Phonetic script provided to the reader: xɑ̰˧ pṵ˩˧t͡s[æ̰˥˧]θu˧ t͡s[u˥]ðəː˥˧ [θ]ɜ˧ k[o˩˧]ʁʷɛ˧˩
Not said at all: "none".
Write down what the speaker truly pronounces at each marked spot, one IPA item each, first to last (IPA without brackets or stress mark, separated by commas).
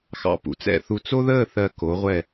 ɛ̰˥˧, o˥, θ, o˩˧